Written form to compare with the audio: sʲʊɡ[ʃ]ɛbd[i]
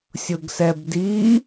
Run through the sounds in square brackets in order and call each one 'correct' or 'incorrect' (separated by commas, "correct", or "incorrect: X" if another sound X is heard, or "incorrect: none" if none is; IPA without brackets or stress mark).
incorrect: s, correct